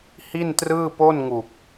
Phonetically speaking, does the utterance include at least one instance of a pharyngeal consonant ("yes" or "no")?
no